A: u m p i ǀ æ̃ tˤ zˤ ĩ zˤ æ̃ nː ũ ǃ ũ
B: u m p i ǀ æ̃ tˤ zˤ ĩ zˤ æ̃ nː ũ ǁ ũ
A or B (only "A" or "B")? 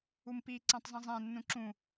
B